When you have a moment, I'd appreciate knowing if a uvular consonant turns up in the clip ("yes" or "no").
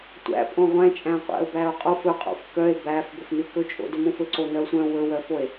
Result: yes